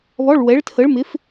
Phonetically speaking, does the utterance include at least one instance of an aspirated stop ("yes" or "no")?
yes